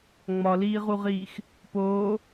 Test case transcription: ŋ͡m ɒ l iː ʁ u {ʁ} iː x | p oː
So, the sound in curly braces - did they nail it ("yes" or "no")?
yes